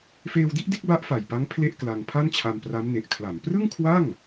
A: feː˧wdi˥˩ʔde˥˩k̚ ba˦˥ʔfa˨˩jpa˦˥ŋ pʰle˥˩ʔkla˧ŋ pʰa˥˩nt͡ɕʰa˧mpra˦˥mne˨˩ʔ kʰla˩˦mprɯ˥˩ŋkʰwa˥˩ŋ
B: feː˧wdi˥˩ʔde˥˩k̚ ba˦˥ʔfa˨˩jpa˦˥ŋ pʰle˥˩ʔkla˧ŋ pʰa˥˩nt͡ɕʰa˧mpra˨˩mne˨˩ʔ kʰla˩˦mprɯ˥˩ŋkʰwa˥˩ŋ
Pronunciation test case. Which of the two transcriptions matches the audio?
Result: A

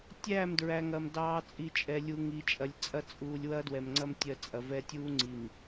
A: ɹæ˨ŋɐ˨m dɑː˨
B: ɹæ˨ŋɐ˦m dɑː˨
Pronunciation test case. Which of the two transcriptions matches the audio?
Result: A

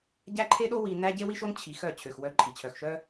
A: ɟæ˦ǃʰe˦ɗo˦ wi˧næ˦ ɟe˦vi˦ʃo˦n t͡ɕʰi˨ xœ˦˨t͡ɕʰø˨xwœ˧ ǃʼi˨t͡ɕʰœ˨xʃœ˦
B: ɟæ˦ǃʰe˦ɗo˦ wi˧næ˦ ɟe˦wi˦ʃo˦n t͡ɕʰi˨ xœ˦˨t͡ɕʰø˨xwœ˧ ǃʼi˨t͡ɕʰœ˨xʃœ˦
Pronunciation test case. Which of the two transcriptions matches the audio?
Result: B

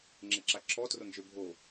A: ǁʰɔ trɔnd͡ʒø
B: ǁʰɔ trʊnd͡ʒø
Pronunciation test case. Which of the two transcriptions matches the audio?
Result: B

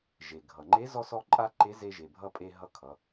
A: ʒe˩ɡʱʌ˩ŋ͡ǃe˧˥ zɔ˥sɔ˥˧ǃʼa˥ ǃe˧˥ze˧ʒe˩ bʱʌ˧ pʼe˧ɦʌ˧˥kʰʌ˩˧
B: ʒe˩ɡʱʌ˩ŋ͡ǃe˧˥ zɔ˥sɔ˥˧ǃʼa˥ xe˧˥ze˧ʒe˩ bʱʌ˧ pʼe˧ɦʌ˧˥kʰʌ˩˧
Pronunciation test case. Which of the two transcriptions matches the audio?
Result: A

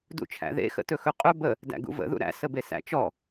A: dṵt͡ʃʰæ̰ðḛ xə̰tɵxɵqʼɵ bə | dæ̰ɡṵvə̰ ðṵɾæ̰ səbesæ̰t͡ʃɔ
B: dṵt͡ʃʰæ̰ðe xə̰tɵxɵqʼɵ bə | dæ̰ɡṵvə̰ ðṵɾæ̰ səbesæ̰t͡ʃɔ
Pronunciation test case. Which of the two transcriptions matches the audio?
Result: A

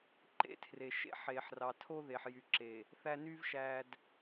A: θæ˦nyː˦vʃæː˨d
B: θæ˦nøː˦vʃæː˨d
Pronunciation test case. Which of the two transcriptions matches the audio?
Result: A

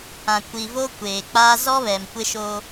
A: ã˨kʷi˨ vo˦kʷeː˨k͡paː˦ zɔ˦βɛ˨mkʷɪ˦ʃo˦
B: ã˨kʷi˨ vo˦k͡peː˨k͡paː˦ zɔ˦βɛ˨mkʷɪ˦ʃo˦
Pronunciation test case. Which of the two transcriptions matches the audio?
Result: A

